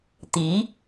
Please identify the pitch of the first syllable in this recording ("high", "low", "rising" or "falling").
rising